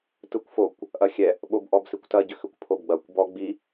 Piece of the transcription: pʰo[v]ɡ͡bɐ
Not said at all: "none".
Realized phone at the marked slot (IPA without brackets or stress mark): b